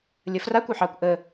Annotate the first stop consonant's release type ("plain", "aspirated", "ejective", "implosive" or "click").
plain